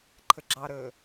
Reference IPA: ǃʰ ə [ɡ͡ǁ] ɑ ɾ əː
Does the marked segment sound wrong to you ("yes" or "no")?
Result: no